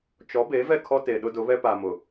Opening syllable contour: rising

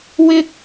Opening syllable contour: high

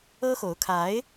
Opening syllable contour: high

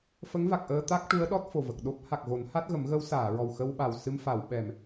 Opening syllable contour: rising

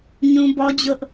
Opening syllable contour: high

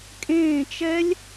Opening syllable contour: falling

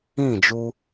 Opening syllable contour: falling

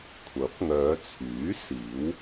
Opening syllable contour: rising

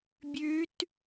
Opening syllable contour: rising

